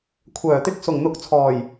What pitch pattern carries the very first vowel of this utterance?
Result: low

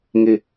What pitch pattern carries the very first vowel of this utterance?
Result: falling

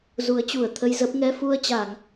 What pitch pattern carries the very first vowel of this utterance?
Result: rising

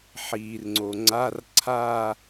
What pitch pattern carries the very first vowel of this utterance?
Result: low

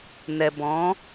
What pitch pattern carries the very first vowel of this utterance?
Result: low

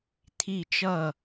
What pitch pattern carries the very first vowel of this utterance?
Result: falling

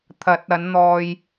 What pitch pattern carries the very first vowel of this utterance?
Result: rising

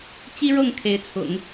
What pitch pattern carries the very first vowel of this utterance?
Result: high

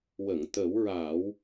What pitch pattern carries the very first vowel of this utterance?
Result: low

